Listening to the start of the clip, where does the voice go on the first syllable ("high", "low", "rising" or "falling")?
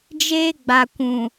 high